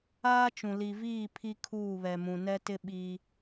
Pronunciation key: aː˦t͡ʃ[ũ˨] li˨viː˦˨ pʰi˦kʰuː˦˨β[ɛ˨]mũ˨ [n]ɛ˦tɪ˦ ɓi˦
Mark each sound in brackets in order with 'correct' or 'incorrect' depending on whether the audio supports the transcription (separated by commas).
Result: correct, correct, correct